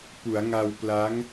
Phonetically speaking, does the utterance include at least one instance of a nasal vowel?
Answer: no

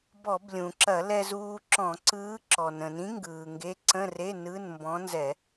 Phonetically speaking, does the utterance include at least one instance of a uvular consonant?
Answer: no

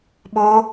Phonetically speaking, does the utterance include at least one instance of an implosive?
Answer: yes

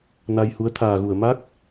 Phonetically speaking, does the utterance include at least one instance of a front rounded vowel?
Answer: no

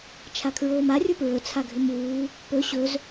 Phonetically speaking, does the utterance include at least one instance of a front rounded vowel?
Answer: yes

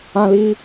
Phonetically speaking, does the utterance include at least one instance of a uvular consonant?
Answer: no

